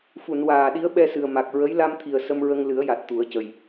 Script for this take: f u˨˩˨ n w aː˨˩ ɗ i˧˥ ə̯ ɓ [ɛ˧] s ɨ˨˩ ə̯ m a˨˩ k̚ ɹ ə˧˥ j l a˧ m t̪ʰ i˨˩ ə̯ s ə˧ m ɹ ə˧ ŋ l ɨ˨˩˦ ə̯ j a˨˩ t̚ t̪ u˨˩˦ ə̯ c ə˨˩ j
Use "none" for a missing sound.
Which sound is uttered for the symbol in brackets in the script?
ɛ˧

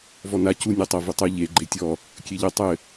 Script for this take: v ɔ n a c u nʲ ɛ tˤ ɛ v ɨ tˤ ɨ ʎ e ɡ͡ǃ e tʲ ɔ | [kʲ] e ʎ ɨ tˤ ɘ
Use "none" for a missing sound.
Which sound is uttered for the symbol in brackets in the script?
kʲ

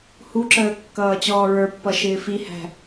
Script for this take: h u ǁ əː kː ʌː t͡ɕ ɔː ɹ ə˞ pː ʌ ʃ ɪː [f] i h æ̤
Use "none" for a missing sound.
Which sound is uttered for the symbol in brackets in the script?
f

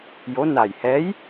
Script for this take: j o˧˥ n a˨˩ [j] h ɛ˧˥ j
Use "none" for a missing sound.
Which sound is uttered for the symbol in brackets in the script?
j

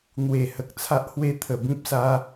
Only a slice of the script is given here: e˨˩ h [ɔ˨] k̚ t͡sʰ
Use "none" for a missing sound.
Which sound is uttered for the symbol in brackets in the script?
ə˨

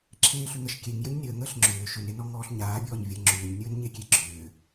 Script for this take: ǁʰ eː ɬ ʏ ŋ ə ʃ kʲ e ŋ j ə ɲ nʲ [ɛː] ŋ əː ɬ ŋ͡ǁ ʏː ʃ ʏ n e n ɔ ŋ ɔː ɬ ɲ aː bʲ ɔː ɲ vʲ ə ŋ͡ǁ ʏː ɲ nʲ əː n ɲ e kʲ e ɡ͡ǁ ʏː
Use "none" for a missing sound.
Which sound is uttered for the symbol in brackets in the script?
əː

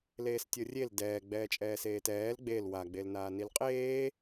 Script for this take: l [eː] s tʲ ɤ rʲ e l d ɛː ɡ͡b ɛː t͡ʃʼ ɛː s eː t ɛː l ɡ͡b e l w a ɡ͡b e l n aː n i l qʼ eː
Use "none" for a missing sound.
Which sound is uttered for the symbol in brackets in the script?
eː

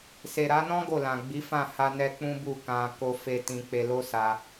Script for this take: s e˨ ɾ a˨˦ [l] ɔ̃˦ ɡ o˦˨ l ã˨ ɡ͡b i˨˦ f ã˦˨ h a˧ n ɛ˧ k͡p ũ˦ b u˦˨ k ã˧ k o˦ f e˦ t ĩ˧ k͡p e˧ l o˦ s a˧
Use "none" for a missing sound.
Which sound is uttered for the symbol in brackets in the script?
n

